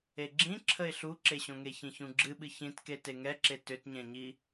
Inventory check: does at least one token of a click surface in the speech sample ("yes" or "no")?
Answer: yes